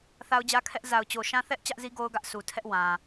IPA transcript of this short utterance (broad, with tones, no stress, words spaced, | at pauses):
θa˦ʊ̯d͡ʑä˦kʰɛ˦ʔ za˨ʊ̯t͡ɕo˨ ʃã˦ θɛ˦ʔ t͡ɕä˦ʔzi˦ ɡo˦ʊ̯ɡä˦ʔsu˨ tʰɛ˦ʔwã˨